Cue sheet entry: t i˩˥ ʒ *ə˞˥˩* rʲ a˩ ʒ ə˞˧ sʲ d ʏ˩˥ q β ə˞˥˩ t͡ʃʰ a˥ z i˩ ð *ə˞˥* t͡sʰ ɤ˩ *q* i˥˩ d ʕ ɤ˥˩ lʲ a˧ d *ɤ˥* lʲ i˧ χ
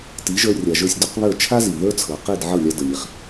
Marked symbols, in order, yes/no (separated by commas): no, yes, yes, no